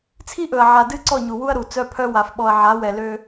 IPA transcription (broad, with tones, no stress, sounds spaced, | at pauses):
t͡sʰ i˦ ʔ ɵ˨ ɐ̯ ʕ a˨ d ɨ˦ ǀ ɔ˦˨ ɲ u˨ w u˦ ɐ̯ ɾ u˨ t͡s œ˦ pʰ œ˦ w a˨ f ɓ ɔ˨ ɐ̯ ʕ a˨˦ w ɛ˨ l ø˦